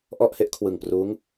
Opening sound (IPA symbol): ʔ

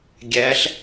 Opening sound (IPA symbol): ɡʲ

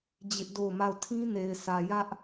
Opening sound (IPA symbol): d͡ʑ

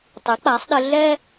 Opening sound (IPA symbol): tˤ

